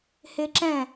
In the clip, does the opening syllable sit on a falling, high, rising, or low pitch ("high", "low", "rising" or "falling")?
high